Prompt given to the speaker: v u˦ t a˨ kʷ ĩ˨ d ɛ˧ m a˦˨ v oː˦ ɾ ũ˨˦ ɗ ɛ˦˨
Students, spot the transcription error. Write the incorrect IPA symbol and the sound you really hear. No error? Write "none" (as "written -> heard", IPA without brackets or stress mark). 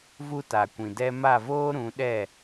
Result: none